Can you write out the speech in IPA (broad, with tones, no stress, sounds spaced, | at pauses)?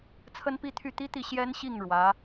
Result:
t͡sʰ ə˥ n p i˥ t̪ʰ y˥˩ t̪ i˥ t̪ i˥˩ ɕ j ɛ˥ n ɕ i˥˩ ŋ ɻ w ä˧˥